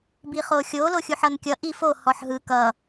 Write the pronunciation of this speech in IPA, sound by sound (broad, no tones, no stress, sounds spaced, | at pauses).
b i χ o xʲ o l o xʲ u ħ ʌ n kʲ ʌ ʔ i f o h ɔ ħ ɦ ɯ k ʌ